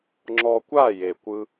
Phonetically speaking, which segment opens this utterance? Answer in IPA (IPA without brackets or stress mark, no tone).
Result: ŋ͡ǁ